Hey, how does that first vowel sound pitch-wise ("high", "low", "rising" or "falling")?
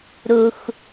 low